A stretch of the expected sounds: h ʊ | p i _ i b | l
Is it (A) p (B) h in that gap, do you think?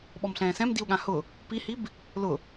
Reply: B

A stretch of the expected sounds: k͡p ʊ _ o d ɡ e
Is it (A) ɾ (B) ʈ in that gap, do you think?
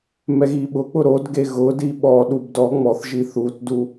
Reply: A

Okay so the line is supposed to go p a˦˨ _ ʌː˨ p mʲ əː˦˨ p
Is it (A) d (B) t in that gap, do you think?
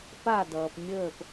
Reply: A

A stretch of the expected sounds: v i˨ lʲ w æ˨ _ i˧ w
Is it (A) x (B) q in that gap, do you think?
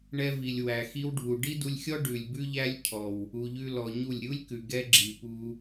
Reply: A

